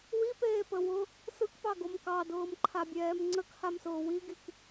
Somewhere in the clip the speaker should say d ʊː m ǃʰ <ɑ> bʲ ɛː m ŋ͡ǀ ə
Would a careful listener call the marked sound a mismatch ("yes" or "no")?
yes